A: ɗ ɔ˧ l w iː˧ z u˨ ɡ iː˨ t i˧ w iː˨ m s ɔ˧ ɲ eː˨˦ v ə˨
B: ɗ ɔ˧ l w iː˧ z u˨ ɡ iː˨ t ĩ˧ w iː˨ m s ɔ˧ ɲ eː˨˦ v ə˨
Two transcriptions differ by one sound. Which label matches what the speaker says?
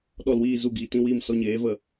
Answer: B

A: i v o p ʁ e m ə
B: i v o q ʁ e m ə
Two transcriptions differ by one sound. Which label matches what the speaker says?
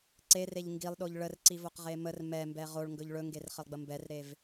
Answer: B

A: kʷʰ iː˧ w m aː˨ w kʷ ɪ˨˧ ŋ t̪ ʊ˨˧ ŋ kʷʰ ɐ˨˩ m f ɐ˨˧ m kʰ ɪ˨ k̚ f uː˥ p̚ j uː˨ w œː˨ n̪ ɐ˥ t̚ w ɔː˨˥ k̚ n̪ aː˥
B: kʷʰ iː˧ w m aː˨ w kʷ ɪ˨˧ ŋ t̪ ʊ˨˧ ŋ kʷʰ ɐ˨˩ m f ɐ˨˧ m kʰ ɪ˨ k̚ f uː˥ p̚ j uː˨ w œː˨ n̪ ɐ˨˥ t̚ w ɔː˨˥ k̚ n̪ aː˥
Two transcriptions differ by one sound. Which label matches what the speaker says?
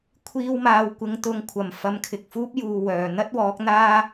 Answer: A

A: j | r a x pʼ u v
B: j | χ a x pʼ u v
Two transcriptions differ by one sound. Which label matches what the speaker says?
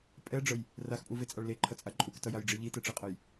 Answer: A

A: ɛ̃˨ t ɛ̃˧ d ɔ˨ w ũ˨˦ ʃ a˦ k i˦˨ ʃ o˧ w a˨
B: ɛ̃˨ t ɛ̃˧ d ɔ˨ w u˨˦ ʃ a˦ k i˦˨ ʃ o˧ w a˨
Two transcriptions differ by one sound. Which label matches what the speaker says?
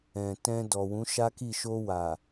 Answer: A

